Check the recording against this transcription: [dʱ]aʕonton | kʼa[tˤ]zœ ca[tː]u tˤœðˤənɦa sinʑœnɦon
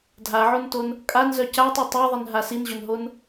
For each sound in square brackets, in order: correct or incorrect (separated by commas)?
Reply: correct, incorrect, incorrect